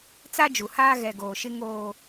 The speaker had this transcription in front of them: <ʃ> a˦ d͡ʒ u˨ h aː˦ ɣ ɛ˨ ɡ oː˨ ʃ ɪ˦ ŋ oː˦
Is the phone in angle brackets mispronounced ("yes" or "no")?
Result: yes